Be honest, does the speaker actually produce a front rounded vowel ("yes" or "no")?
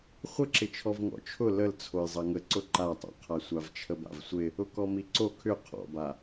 yes